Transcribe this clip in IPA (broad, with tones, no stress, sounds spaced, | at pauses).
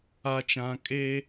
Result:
a˨ t͡ʃ ã˨ kʼ e˦